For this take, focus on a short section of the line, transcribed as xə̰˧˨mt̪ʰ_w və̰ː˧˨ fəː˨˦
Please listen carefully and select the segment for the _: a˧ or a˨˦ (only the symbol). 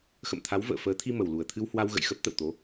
a˨˦